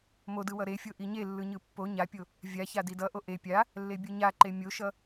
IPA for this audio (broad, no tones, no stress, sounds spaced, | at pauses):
m o d ɯ w ʌ ɾ e fʲ o ʔ i ɲ e lː ɯ ɲ ɯ pː o ɲ a pʲ o | vʲ a ç a d i d ʌ ʔ o ʔ e pʲ a | lː e bʲ ɯ ɲ a ǃ e mʲ o ʃ ʌ